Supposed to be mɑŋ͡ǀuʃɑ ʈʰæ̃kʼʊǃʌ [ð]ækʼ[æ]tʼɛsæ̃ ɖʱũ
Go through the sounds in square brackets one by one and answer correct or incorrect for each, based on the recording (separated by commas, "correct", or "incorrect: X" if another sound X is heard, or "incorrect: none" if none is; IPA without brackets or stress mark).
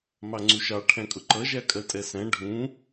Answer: incorrect: ʒ, incorrect: ɜ